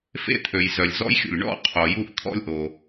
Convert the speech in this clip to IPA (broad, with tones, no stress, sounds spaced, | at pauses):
f ḛ˥ t̪ʰ ø˩ j z œ˩ lʲ z ɔ̰˥ j xʲ ṵ˩ lʲ ɳ ɔ̰˥ qʰ o˩ j u˥ ʔ t̪ʰ ɔ̰˥ lʲ ʔ o˩